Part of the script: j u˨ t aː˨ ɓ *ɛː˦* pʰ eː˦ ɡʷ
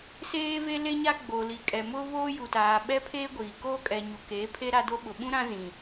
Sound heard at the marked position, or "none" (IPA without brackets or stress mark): ɛ˦